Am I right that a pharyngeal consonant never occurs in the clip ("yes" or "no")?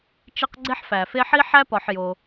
no